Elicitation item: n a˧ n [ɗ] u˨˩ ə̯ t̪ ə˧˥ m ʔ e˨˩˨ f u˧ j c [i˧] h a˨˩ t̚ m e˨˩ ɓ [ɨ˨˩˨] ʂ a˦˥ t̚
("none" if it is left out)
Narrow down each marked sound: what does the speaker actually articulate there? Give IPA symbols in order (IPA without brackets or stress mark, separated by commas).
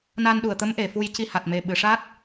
ɗ, i˧, ɨ˨˩˨